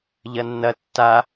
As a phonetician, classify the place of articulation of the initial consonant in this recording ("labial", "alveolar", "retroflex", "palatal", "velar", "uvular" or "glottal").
palatal